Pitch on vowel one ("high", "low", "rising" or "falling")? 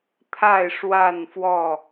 falling